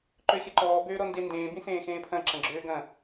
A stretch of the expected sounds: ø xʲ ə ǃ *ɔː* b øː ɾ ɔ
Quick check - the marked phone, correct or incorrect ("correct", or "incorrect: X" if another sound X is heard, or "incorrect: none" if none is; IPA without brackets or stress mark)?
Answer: correct